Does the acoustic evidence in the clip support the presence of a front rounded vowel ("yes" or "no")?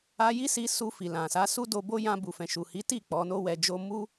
no